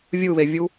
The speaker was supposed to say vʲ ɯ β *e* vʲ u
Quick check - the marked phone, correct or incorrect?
correct